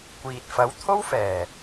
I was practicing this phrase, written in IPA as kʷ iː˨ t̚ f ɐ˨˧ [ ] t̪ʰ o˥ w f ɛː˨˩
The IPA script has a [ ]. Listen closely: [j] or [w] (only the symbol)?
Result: w